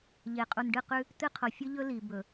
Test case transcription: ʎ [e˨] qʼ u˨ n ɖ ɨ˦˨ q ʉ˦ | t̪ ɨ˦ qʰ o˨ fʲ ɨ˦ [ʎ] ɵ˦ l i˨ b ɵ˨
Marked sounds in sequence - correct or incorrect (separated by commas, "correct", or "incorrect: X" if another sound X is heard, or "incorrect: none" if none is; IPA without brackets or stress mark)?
correct, correct